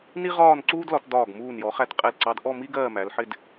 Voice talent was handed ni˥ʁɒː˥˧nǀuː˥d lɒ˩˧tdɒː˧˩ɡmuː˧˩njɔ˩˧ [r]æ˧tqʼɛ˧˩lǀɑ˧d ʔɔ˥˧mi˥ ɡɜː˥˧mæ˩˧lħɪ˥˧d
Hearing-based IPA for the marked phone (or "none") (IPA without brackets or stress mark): χ